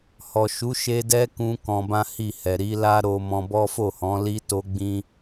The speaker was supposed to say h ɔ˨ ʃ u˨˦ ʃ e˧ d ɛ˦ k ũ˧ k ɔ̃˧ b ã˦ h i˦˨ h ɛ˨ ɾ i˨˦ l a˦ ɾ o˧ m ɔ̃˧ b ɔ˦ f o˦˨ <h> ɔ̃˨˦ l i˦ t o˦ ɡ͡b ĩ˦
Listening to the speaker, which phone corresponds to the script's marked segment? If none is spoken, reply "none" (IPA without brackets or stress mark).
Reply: h